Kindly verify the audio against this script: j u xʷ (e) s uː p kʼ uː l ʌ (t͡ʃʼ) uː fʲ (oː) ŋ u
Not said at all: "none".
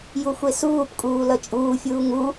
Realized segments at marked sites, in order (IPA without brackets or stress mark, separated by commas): e, t͡ʃʼ, uː